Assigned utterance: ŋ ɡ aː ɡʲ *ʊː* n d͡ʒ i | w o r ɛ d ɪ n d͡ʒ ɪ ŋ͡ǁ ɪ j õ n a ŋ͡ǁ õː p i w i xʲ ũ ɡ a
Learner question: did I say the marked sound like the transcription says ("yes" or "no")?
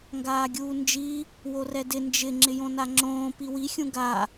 no